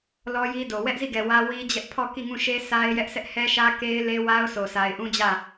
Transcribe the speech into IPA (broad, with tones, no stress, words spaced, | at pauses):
lɔ˦ji˦do˨ wɛ˦ʔzi˦˨ɡɛ˨ wä˦wi˦d͡ʑɛ˦ʔ pʰɔ˦˨ki˦˨ ŋũ˦˨ʃe˦ sa˦ɪ̯ jɛ˦ʔsɛ˦ʔ hɛ˦ʃä˦ ke˦ɪ̯le˦wa˦ʊ̯ sʰo˨sʰa˨ɪ̯ʔũ˦d͡ʑä˦˨